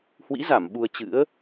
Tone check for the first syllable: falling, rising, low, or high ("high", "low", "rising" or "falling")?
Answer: rising